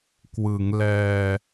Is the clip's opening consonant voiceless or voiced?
voiceless